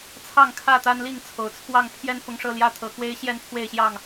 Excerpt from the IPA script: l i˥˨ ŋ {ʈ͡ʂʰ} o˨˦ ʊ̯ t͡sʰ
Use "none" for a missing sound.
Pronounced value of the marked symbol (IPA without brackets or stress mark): t͡sʰ